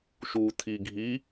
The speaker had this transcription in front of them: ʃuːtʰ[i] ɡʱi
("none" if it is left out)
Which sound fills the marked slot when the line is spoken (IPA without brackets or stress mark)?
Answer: i